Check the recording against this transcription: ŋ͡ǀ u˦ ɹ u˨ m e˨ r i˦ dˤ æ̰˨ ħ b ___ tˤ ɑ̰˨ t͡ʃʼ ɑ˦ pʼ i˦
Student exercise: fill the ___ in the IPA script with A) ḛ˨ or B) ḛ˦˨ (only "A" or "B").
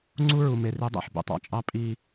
A